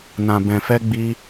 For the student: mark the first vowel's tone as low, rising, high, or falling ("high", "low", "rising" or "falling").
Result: low